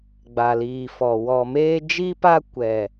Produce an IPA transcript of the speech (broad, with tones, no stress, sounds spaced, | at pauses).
ɡ͡b a˨ l iː˨ f ɔ˨ w ɔ˨ m eː˦ d͡ʒ i˦ p a˦ kʷ ɛ˨